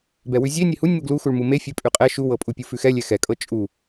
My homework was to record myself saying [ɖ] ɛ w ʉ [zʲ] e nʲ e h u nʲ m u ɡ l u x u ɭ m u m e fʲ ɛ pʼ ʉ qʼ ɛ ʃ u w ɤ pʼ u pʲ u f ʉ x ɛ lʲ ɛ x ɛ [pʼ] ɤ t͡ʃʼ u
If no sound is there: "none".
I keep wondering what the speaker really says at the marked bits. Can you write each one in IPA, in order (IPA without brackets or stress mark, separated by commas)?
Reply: b, zʲ, kʼ